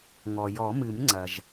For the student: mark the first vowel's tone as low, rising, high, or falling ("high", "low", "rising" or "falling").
low